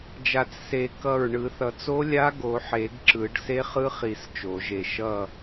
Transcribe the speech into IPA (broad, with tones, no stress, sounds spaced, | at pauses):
d͡ʒ a˨˩˦ t͡s s e˨˩˦ k ʌ˧˩ ɹ ɳ ɯ˨˩˦ θ ʌ˨˩˦ t͡s o˧˥ lʲ a˧˥ ɡ o˨˩˦ ħ e˨˩˦ ɡ ǁ ɯ˨˩˦ ɖ s e˧˥ χ ɯ˧˥ χ i˨˩˦ s t͡ʃ o˨˩˦ ʒ e˧˩ ʃ ʌ˧˩